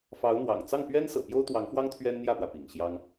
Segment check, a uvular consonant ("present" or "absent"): absent